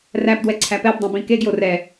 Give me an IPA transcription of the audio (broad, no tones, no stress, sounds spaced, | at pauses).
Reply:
r æ p d w ɛ ǀʰ æ p ɛ b dˤ ẽ b ĩ k e ɡ j o r ɛ